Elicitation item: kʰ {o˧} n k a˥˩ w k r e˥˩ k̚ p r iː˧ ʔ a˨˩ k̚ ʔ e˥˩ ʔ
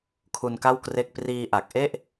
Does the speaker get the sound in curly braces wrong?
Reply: yes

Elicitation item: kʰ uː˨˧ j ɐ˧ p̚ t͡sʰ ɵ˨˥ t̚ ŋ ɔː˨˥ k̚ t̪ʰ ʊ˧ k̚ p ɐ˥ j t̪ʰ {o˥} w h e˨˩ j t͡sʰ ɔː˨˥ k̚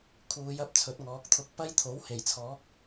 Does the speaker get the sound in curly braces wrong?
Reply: yes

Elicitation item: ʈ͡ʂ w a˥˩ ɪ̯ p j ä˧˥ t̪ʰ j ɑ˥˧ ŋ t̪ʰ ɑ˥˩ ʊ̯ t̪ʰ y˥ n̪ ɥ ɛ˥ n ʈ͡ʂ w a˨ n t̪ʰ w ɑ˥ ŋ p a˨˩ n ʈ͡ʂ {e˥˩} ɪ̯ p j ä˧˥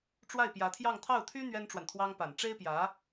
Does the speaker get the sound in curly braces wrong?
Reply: yes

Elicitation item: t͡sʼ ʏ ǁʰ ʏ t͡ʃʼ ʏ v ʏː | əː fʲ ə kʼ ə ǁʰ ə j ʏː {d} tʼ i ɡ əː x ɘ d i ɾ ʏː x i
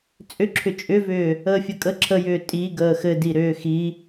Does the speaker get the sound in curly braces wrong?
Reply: yes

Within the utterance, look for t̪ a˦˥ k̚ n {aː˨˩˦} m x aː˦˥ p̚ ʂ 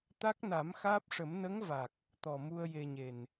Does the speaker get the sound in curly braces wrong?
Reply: yes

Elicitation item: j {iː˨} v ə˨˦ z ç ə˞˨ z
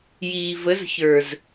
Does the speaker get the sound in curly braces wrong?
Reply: no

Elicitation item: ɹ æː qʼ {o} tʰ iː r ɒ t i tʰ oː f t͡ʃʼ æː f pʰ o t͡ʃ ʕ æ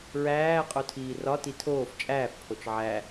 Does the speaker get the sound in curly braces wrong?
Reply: no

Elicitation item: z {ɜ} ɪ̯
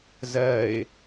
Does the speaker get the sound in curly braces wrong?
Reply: no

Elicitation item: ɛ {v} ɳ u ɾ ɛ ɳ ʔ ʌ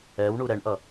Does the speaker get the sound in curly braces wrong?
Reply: yes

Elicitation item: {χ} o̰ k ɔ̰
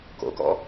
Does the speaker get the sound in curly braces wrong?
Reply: yes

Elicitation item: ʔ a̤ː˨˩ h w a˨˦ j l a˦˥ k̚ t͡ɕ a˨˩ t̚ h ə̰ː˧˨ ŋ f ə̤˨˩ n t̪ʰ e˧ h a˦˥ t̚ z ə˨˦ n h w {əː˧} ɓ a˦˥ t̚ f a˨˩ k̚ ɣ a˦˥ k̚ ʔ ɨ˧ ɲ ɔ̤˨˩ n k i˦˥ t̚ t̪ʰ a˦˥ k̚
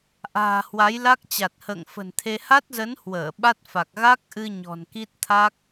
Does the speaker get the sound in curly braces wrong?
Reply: yes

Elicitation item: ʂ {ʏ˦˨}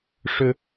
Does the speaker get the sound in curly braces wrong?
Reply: yes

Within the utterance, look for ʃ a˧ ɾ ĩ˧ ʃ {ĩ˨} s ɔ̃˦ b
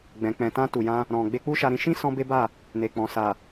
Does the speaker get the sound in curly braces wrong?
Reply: yes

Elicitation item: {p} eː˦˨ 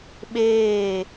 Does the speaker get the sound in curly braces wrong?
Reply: yes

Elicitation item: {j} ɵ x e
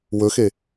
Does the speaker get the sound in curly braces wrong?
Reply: yes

